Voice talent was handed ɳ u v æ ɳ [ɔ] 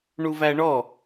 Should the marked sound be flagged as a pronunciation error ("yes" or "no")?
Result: no